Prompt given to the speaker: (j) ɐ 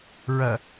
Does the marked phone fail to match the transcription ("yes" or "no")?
yes